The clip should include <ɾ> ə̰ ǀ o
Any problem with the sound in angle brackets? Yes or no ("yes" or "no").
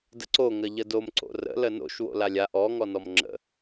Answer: yes